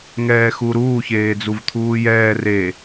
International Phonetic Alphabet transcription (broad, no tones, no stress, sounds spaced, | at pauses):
ŋ ɛː x u ɾ uː ç eː d͡z u v t̪ʰ uː j ɛː r e